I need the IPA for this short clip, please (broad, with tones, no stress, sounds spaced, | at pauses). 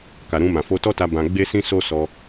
k a˨ ɾ ũ˧ m ã˨ f o˧ t ɔ˦ t a˧ b ã˧ ɡ͡b e˦ s ĩ˦ s o˦ s ɔ˧